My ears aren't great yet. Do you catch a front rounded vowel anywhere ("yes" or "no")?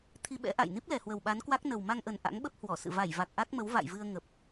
no